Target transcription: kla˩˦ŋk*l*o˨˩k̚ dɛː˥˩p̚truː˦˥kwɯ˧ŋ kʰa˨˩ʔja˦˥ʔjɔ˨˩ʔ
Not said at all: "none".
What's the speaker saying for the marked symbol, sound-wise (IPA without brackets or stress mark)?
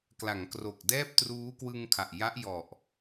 r